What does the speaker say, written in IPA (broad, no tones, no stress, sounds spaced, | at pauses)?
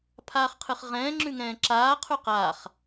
pʰ aː χ qʰ ɨ χ ʁ ɛ̃ː ŋ͡ǁ ʉ ŋ ɛ̃ː ǁ aː qʰ ʉ q aː χ